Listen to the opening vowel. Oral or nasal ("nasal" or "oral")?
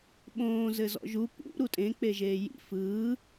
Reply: nasal